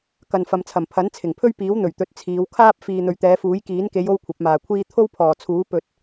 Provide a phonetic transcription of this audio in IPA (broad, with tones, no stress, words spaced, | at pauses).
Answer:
kɐ˨nfɐ˨mt͡sʰɐ˨˩mpʰɐ˨˥n t͡sʰɪ˨˩ŋpʰɵ˥ɥpiː˨˥w n̪ɵ˨˩ɥt̪ɵ˨˥t̚ t͡sʰiː˨˧wkʰaː˥p̚ fiː˨n̪ɵ˨ɥt̪ɛː˨˧fuː˨˥j kiː˨˥nke˨˧j o˥wkʷʰɐ˨˥p̚maː˨kʷʰiː˥ t̪ʰo˥wpʰɔː˨˩t͡sʰuː˨˥ pɵ˧t̚